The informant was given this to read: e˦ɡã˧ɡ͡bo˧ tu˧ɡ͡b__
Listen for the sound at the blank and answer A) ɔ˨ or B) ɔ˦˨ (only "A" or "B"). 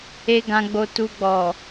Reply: A